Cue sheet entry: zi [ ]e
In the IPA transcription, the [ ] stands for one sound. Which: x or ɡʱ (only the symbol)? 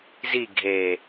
ɡʱ